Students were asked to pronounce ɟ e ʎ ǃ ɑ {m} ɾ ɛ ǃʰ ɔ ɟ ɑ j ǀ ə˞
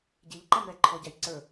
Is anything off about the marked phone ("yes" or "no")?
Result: no